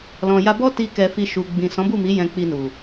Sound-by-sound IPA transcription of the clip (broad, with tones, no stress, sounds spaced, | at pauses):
l ɔ̃˨ j a˧ b ɔ˦ t i˧ k ɛ˨ f i˧ ʃ u˨ ɡ͡b ĩ˨ s ɔ̃˨˦ b u˦˨ m i˨˦ j ɛ̃˧ k͡p i˧ n u˨